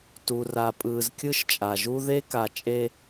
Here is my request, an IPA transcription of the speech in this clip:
tu˨ra˨ pʼɯː˨zkʲɯ˦ʃt͡ʃʼa˨ʒu˦ ðe˦ka˨ t͡ʃʼe˦

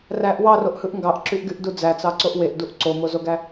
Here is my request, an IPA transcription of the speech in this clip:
ræʔ wɑroʔhɯʔ ŋɡɑʔǁyʔɡyʔdu d͡zæt͡sɑǀoʔ weʔduʔ ǀomozoɡæ

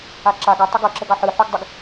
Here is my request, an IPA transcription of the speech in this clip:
aǁa ɡu tˤuɡɤǁəɡɑ ħɯħuɡdˤɯɡ

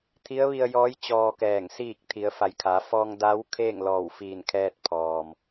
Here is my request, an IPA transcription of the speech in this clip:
t̪ʰi˧˥ə̯ʋi˧ə̯jɔː˧˥j t͡ɕɔː˧kɛː˧˩ŋ siː˧˩k̚ t̪ʰi˩˧ə̯fa˩jkʰa˩˧ fɔː˧ŋda˧˥w kʰeː˥˨ŋlɔː˧˩wfiː˧˩n kʰɛː˧t̚pʰɔː˩m

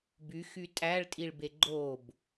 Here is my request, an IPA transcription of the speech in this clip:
byxy tʼæɭtʼiɭbe ɡ͡ǃob

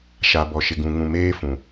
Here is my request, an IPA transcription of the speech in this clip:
ʃa˨bɔ˨ʃɪ˨ɡũ˨ ŋũ˨meː˦fũ˨

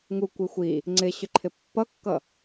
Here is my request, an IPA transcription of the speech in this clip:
ŋukʷi xʷi | ŋ͡ǀɪɕʏǃʰɪ pːʌkːʌ

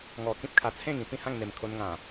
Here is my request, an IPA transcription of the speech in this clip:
ŋɔ˨˩kĩ˦p̚kʰa˨˩t͡sʰẽ˥˧ŋ ĩ˥˧pĩ˥˧hã˥˧ŋ n̪e˨˩mkʰo˧nŋã˨˩

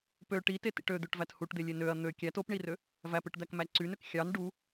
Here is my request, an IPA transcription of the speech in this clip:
pø ʈitetḭʈ ød̪øʈvæt huʈd̪elʲe nøɐ̯ n̪ø kʲæt opɳirø | væpɯʈd̪ækmæ ǀynøk xʲɑn ɖu

